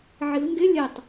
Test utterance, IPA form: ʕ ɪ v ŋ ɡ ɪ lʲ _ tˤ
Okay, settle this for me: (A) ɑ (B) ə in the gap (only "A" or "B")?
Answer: B